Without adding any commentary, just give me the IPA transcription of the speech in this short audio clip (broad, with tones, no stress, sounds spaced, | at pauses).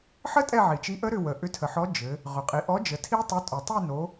ħ ə˦˥ tʼ ɛ˦˨ ʕ i˩ t͡ʃ i˨˥ ʔ ə˦˥ ɾ ʏ˦˨ w ə˩ ʔ ʏ˨˥ tʰ ə˩ ħ ɔ˨˥ d͡ʒ ɘ˩˧ | ʁ ʏ˩ qʼ i˩˧ ʔ ɔ˨˥ d͡ʒ ə˩˧ tʰ i˦˥ tˤ ɛ˨˥ tʼ o˩ tˤ i˦˨ n o˩˧